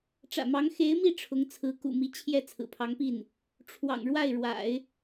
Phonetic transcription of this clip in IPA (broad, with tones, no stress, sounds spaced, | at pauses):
ʈ͡ʂ ä̰˨˩ m ɑ˧˥ ŋ x e˧˥ ɪ̯ m i˥˩ ʈ͡ʂʰ ʊ˧˥ ŋ t͡sʰ ɹ̩˧˥ k ṵ˨˩ m i˧˥ t͡ɕʰ j ɛ˥˩ t͡sʰ ɹ̩˨˩ pʰ ɑ˧˥ ŋ p i˥˩ n | ʈ͡ʂʰ w ɑ̰˨˩ ŋ ɻ w a˥˩ ɪ̯ ɻ w a̰˨˩˦ ɪ̯